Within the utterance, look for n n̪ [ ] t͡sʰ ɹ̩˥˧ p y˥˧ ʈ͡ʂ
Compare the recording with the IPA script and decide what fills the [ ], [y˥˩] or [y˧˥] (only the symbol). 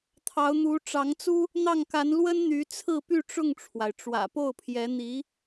y˧˥